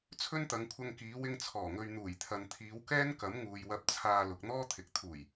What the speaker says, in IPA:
t͡sʰɵ˥nt̪ɐ˨˧ŋkʷʰɐ˧ŋkiː˨˧ wɪ˧ŋt͡sʰɔː˨˩ŋɵ˨ɥ n̪uː˨˩jt̪ʰɐ˨nt̪ʰiː˨˧w kɛː˥nkɐ˨˥mŋuː˨j wɐ˧p̚t͡sʰaː˧ lʊ˨k̚n̪ɔː˥ t̪ʰɪ˨k̚ t̪ʰuː˨˩j

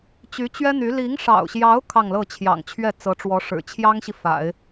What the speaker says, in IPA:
t͡ɕy˧˥t͡ɕɥɛ˥n̪y˧˥ li˧˥ŋʂɑ̰˨˩ʊ̯ɕjɑ˧˥ʊ̯ kʰɑ˥˧ŋlɤ˥˩ t͡ɕʰjɑ̰˨˩ŋt͡ɕʰɥɛ˥˩t͡sɤ˧˥ʈ͡ʂwɔ˧˥ ʂɻ̩˨˩ t͡ɕʰjɑ˥ŋɕi˨ fa̰˨˩˦ɪ̯

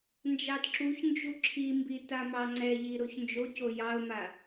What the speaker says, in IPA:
nd͡ʒɑdǁuçnd͡ʒu ǁʰimbi tamɑŋ͡ǀɛʎi ɾoçnd͡ʒoco jɑʊ̯ma

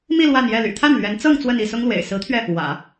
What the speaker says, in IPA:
mi˥˧ lwa˥˧njɛ˥˩ ly̰˨˩t̪ʰa˥˩n lɥɛ˧˥nt͡sɤ˥˧ŋ t͡swə˥˧ni˥˩sʊ˥ŋlwḛ˨˩ɪ̯ sɹ̩˧˥t̪ʰɥɛ˧ | wä̰˨˩˦

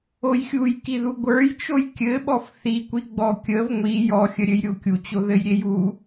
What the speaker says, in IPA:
ojxʲujkiðu ɡʷə˞jt͡ʃoj kʲɘɓɔf θikʷiɡ͡bɔ kʲəv ŋʷi jɔxʲəɾʲɘjɾʲo kʲut͡ɕo ðɘjɾʲeju

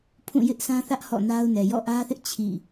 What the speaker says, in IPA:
pʰũ˦˨jɪ˦ʔsʰã˦θä˦ʔ hɔ̰˦˨na˦ʊ̯nɛ˨ jɔ̰˦˨ʔä˦θɪ˦ʔ t͡ɕʰḭ˦˨

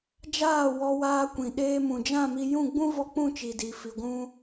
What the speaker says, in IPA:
d͡ʒaː˦˨ wɔ˧waː˧kʷĩ˨ ɗeː˧mũ˨d͡ʒã˦˨mi˧ jũ˦˨ɡ͡bũ˦ vɔ˧k͡pũ˦˨t͡ʃi˨ di˨fi˨ɡʷũ˧

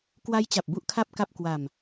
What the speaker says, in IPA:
kwa˦˥jt͡ɕa˨˩p̚ bu˥˩ʔkʰa˥˩p̚ka˥˩p̚ kwa˧m

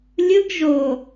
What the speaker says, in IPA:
lʲɯɡ ʒo

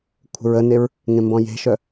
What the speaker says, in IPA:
kʷʰə̤ɹəneɹ | ŋẽmbɔ̃je̤ʃœ

